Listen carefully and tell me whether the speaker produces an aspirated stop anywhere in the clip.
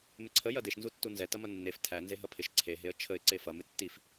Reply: yes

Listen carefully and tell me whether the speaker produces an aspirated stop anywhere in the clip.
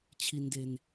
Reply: yes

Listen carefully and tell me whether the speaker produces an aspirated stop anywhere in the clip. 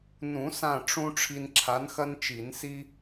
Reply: yes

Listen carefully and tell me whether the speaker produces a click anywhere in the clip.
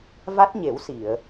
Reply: no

